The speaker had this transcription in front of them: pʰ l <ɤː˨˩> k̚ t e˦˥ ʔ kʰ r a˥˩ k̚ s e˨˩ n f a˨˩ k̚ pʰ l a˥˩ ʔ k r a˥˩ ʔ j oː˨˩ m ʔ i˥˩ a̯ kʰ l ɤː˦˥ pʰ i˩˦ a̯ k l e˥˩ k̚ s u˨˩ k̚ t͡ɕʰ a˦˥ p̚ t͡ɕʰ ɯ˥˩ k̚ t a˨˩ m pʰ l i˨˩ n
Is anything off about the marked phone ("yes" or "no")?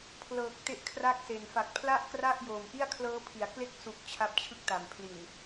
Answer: no